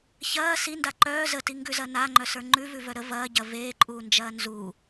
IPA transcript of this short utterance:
ç ɐː s i n d a ǃ œː z ə t i ŋ ɡ ʉ z ɐ n a ŋ͡ǃ œ s ə˞ ŋ͡ǃ ʉ v ʉ v œ ɾ ə v ɐː ɟ ɐ v eː ǃʼ uː n d͡ʒ ɐː n z u

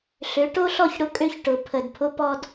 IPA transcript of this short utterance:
ɬ ø˨˦ ʈ o˦ ɬ ɔ˦˨ ç ɽ ʊ˦ kʼ ø˦ ç ʈ ʊ˨ pʰ ə˨ d pʰ ʊ˦ p ɔ˦ d

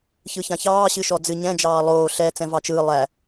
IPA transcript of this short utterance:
ç ɯ ç ã ç ɑː ɕ ɨ ʃ ɔ d͡z ɨ ɲ ɛ̃ d͡ʒ ɑː lˠ oː ɬ ɛ t͡s ɛ̃ v ɑ t͡ʃ ɯː lˠ æ

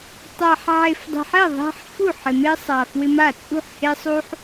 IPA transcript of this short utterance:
tˤ a˨ ħ ʕ e˨ f dˤ e̤˨ ħ ɛ˥˩ ðˤ ɛ̤˦ ħ f u˥˩ ħ ɪ˨ m e˦ sˤ a˨ f w ɪ˦ m a˥˩ t͡sʼ ṳ˥˩ ħ h e˦ sˤ u˦ ħ

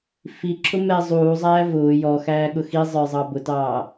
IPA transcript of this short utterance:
f i ǁʰ ʊ m ɛ zˤ uː zˤ æː v ʊː j ɔ x æː ɠ ʊ x i zˤ ə˞ zˤ ɑ b ʊ t ɑː

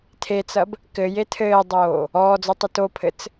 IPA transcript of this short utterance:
tʰ e t͡s ɐ b | k ɘ j e tʰ ɘː dˤ oː | ɔː d͡z o tˤ ɪ t o pʰ ɘ t͡s

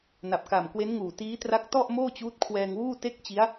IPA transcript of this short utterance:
n a˨˩ p̚ k a˨˩ m k w e˦˥ n ŋ uː˨˩ t iː˦˥ t r a˦˥ k̚ t ɔ˥˩ ʔ m oː˥˩ t͡ɕ uː˦˥ t̚ kʰ w ɛː˧ ŋ w uː˥˩ t e˥˩ k̚ t͡ɕ i˦˥ a̯

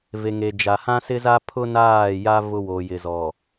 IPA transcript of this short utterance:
v e˨ ŋ e˨ d͡ʒ a˨ h ã˦ s ɪ˦ z a˦ pʰ ʊ˦ n aː˦˨ j a˦ v ʊ˦ w o˨ j ɪ˨ z ɔ˨

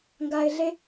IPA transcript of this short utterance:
ŋ ɡ a˨ ɪ̯ ɮ e˦

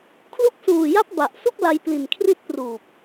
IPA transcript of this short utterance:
kʰ l u˦˥ k̚ s uː˨˩ j a˦˥ p̚ b a˨˩ ʔ s u˥˩ k̚ l a˧ j p l i˨˩ n kʰ r i˥˩ t̚ p r uː˨˩ p̚

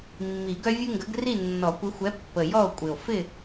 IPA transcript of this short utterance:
mː i˨˩˦ ɡ œ˦ vʲ ɯ˦ ŋ ɡ ə˨˥ ɡ r i˥˨ nː ɔ˨˩˦ kʷ ɪ˨˥ xʷ ɛ˨˥ pː ə˨˩ j ɔ˥˨ o̯ kʷʼ ɪ˨˩ o̯ f ɪ˥˨

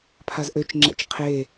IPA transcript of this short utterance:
pʰ a z ʔ ø t͡ʃ ŋ͡ǁ ɛ̰ t͡ʃ qʰ e

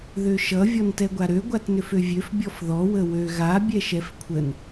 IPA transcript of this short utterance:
ð ø ʃ ʌ vʲ ɔ n t ɛ ɡʷ a ɾ ø ɡʷ a t n ʏ f ø vʲ ø f bʲ ɔ f ð ɔ w ə w ø ɣ a bʲ ɛ ʃ ɛ f kʷʰ ə n

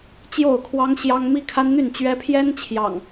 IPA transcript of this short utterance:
t͡ɕ j o˥˨ ʊ̯ kʰ w ɑ˦ ŋ ɕ j ɑ˦ ŋ m i˦ kʰ a˦ n n̪ y˥˨ n t͡ɕ ɥ ɛ˦ pʰ j ɛ˦ n t͡ɕʰ j ɑ̰˨˩ ŋ

